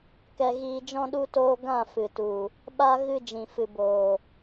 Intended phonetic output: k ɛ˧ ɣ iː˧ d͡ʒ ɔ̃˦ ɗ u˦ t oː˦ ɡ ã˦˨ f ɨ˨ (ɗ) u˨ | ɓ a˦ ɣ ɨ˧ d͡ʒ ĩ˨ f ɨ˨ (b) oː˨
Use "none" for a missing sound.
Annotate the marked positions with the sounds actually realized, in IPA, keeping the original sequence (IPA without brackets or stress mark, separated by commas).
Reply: t, b